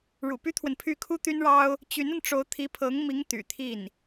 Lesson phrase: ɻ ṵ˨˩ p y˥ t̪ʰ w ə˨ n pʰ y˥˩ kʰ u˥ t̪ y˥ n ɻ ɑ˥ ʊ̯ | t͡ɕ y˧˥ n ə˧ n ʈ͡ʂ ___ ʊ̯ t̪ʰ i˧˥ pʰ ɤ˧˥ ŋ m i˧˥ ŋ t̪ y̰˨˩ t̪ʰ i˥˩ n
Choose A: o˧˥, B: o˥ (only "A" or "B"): A